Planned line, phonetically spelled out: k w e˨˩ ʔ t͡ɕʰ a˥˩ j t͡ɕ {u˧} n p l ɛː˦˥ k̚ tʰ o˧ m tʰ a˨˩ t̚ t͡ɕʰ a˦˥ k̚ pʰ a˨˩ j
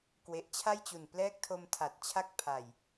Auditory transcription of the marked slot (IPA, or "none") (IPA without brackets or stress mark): u˨˩